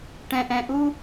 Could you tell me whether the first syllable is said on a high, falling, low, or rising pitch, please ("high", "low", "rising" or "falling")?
low